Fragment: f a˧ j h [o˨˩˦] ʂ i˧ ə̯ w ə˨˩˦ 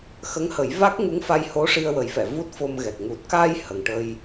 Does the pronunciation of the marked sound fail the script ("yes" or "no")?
yes